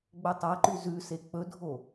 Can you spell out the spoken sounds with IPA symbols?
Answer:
ɡ͡b ɵ tˤ a ǃ ʉ z ʉ s e k͡p ɵ dʱ o

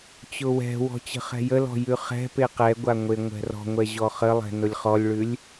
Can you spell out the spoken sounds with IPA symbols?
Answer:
t͡ɕ ʊ w ɛ̤ w ɔ̤ t͡ɕ ə̤ χ ɛ̤ j ə l ɔ̤ j ʉ χ ɛ̤ p e q ɛ ɡʷ a ŋʷ e ŋʷ ɛ̤ r ɔ̤ ŋʷ ɛ ʑ ɔ χ ə lˠ ɛ̤ n ʊ lʲ χ ɔ lʲ ɭ ʉ lʲ

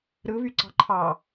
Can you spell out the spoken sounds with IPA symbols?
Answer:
ɾ ɯ β y ǀ ɑ̤ ǃʰ ɑ

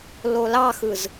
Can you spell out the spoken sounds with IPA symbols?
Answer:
l o l ɑ x ɯ z

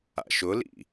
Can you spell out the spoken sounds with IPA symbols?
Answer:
a̰ ʃ ʊ l ḭ

